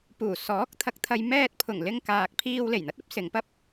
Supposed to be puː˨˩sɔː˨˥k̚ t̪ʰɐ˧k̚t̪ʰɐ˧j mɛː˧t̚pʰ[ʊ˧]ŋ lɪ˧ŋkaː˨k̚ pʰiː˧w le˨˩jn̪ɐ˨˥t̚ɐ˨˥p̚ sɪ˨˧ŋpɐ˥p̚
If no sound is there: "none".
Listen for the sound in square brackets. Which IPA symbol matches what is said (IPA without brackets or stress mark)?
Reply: ʊ˨˩